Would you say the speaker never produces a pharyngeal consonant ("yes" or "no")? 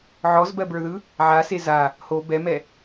no